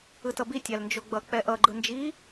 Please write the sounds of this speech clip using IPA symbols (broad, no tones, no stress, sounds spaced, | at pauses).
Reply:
ɯ t ʌ b i tʲ a l n d͡ʒ o ɡ͡b ʌ k͡p ɛ ʔ ʌ ɡ͡ǃ ɯ n d͡ʒ i